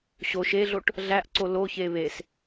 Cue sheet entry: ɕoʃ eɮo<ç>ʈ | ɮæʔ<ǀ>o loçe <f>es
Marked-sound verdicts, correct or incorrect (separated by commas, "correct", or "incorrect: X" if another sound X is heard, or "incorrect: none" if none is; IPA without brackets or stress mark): incorrect: none, correct, incorrect: β